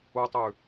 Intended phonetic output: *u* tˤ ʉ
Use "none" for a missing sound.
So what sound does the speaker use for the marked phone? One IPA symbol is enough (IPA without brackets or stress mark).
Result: u